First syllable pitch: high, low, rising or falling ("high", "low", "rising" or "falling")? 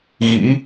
rising